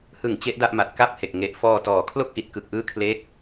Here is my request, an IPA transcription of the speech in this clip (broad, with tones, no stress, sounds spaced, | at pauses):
h ɯ˩˦ ŋ t͡ɕ e˦˥ ʔ d a˥˩ ʔ m a˨˩ t̚ k a˥˩ p̚ h e˨˩ k̚ ŋ e˨˩ ʔ f ɔː˧ t ɔː˨˩ kʰ l o˥˩ k̚ ʔ i˨˩ t̚ k ɯ˨˩ k̚ ʔ ɯː˦˥ kʰ l e˦˥ k̚